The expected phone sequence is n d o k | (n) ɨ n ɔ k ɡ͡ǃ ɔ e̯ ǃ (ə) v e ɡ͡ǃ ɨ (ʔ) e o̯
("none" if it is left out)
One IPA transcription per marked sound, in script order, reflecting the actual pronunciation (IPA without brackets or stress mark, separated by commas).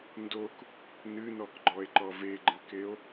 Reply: n, ɔ, k